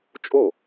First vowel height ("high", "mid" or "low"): mid